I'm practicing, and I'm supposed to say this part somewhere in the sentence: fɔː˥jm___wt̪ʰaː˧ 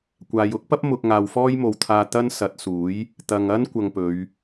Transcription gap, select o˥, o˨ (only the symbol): o˨